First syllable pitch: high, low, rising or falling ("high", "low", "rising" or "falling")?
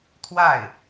falling